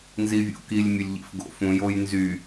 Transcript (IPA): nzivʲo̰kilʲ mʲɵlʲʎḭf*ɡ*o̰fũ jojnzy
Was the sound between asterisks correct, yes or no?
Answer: yes